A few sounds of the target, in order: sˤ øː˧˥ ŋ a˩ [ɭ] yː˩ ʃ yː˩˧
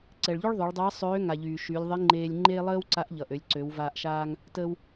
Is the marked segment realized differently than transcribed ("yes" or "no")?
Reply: yes